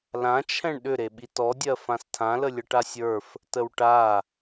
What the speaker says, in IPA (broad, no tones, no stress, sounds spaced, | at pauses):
l ã t͡ʃʰ ɛ̃ ɳ ɗ ʏ ɾ e ɓ i t ɔ dʲ ɜ f ã s tʰ ã l ə lʲ ə ʈ a sʲ ə˞ f | t ə w ʈ a